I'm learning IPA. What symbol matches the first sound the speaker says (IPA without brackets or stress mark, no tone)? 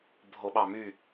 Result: bʱ